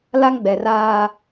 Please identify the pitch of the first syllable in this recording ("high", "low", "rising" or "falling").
high